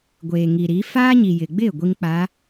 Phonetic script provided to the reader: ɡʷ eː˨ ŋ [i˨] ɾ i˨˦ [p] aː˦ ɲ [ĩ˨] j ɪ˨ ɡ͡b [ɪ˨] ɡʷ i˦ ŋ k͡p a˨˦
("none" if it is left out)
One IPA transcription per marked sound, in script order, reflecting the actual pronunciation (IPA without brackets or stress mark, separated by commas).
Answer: i˨, f, i˨, ɪ˦˨